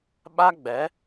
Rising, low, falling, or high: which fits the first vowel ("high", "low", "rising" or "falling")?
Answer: high